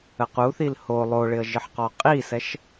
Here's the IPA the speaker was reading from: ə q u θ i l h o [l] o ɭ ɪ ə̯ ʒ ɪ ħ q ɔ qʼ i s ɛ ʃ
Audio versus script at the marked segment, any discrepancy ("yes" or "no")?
yes